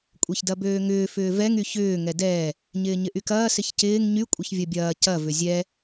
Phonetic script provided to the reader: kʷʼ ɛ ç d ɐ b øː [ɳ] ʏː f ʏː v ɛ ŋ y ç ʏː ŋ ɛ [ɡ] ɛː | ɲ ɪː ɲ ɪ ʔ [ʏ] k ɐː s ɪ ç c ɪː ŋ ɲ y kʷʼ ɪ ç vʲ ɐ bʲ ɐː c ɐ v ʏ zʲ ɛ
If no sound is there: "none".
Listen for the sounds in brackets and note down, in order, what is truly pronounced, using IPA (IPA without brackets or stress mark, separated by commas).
ŋ, d, y